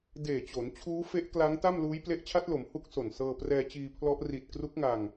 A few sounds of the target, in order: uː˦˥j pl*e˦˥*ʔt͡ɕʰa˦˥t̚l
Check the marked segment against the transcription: correct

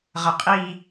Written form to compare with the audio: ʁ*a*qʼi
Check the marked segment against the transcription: incorrect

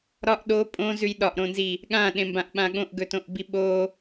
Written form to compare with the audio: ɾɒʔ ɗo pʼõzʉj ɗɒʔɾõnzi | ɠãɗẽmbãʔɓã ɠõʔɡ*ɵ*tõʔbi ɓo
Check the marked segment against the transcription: correct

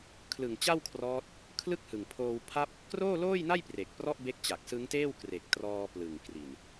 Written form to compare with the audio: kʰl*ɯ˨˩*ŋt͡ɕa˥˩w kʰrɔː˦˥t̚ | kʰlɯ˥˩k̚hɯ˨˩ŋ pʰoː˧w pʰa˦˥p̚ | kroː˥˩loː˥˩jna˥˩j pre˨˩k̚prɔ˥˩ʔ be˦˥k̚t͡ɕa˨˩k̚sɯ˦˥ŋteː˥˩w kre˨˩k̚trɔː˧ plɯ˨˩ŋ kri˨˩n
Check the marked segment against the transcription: correct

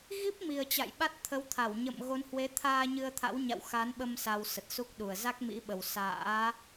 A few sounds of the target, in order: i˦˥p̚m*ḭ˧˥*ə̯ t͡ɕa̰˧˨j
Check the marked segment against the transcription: incorrect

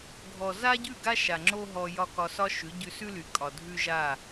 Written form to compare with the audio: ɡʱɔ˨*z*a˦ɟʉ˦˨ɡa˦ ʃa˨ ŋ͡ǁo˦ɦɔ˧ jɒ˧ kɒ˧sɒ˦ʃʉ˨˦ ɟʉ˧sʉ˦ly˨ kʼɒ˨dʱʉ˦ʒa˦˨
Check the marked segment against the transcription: correct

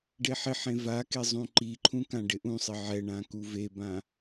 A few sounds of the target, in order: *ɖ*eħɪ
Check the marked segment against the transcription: correct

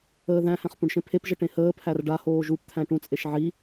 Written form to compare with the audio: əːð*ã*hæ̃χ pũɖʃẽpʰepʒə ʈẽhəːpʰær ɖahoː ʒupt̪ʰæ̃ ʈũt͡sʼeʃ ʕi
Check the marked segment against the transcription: incorrect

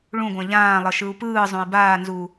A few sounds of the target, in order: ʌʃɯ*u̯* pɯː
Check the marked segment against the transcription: correct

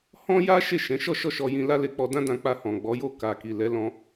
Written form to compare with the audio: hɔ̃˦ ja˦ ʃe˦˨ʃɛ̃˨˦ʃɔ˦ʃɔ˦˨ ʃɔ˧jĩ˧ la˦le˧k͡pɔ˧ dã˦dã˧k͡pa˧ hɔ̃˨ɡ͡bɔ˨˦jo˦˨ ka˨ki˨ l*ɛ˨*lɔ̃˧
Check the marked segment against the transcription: incorrect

